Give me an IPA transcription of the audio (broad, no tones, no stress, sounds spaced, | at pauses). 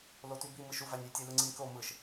l o t y b i m ɯ ʃ u v æ nʲ y tʲ e l ɯ ŋ͡ǀ i nʲ k o m ɯ ʃ